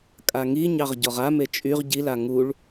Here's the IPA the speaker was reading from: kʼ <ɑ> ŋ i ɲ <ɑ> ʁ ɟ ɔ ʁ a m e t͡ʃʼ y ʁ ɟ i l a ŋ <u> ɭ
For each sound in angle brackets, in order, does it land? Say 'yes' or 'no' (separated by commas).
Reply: no, yes, yes